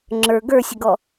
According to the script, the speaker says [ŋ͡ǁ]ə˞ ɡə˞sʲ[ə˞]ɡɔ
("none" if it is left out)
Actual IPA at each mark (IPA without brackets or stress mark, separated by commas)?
ŋ͡ǁ, ə